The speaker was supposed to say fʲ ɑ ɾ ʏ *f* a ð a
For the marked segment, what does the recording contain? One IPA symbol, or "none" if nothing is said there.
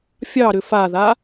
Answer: f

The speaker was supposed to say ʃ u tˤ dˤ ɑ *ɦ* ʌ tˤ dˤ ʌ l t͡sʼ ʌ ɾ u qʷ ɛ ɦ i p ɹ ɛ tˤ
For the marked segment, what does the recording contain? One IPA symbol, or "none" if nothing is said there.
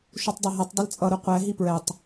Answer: ɦ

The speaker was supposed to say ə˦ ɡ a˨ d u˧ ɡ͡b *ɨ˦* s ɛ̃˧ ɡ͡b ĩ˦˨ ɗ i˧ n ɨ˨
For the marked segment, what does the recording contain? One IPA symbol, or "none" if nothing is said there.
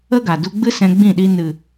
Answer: ɨ˦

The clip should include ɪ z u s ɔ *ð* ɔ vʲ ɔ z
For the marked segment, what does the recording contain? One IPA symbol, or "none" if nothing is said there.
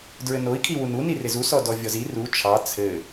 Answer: d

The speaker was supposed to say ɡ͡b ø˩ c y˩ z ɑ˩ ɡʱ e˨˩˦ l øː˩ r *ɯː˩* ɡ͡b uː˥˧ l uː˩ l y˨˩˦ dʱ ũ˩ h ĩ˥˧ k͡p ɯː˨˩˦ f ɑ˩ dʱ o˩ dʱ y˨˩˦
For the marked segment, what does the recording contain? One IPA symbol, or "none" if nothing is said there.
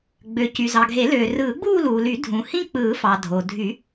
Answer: ɯː˨˩˦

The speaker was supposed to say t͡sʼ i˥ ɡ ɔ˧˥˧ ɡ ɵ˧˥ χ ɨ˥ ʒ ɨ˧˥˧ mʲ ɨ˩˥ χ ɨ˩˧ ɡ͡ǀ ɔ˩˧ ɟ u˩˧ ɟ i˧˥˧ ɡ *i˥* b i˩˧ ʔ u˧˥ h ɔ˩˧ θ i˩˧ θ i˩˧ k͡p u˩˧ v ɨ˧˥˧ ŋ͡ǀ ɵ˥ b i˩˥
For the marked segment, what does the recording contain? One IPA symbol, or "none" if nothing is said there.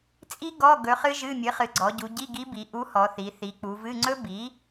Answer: i˧˥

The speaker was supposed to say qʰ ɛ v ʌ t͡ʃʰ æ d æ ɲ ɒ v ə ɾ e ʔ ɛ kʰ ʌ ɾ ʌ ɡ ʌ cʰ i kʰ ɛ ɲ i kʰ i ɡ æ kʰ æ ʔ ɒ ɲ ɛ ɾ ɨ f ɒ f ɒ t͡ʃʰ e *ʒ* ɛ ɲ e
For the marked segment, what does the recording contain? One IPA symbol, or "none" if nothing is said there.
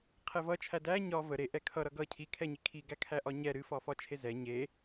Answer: z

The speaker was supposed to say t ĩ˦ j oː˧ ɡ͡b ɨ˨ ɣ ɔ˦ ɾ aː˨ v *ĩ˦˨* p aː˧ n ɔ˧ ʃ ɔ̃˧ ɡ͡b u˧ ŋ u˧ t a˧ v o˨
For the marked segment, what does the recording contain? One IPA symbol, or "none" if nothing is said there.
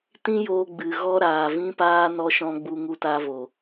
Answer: ĩ˧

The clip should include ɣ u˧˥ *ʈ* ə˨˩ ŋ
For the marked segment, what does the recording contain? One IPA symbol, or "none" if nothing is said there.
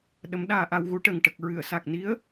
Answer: ʈ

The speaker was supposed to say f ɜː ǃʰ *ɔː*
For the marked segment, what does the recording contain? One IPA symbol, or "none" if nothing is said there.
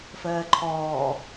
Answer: ɔː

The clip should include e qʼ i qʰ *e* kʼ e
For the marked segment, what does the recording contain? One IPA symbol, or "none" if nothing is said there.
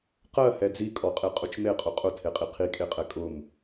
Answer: i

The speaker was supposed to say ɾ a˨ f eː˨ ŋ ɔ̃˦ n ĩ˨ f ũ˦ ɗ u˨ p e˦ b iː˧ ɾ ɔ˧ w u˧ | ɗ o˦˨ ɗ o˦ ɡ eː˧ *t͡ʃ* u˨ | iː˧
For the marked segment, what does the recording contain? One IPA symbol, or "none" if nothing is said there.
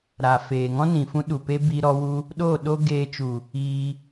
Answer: t͡ʃ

